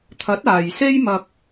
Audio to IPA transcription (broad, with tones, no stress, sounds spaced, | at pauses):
t̪ʰ ɐ˨˥ t̚ aː˨ j s e˥ j m ɐ˧ k̚